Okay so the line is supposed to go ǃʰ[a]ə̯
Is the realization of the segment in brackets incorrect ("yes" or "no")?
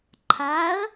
no